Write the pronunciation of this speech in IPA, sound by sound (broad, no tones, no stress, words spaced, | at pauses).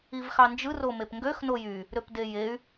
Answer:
ivxɑnd͡ʒɯ romepŋɡøx nojy | ɾøpdejey̯